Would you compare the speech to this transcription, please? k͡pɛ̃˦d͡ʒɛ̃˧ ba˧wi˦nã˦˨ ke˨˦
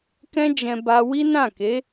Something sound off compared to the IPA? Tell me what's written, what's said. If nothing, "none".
k͡p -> k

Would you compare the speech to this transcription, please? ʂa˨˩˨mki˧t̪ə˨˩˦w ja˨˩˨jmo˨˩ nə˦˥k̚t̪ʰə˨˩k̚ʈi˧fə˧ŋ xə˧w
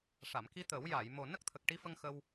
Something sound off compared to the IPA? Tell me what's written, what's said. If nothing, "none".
none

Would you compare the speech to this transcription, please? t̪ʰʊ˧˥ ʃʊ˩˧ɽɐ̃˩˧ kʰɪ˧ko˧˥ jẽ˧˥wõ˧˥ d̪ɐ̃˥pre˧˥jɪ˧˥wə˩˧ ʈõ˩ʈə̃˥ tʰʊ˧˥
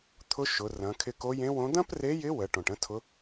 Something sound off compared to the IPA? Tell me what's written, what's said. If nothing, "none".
ɽ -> r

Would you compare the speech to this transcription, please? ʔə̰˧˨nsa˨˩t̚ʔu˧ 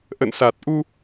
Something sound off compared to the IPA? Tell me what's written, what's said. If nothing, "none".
none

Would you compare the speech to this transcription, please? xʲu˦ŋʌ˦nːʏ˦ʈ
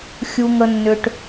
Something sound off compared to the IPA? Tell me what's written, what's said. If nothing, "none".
ʌ˦ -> ə˦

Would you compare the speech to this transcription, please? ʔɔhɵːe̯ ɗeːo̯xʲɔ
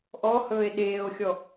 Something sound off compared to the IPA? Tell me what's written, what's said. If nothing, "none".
none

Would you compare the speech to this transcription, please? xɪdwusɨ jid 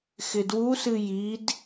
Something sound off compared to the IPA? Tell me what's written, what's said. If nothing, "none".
none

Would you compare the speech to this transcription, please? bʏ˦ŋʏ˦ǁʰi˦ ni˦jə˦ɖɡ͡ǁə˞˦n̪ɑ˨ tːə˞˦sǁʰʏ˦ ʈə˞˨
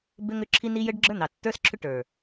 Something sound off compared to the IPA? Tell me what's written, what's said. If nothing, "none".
none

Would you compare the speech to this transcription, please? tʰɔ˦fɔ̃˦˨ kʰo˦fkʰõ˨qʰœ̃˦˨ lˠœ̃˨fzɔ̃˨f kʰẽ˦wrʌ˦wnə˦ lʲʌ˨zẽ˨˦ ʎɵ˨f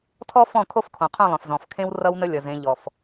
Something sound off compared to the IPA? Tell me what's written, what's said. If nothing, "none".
ɵ˨ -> ɔ˨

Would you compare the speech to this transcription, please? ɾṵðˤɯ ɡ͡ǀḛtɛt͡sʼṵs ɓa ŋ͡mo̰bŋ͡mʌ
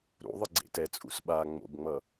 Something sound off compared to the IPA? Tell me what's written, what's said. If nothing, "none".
none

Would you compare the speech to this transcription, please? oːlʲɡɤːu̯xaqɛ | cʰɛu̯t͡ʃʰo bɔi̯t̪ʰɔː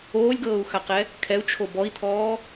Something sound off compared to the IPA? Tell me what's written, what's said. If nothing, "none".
cʰ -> kʰ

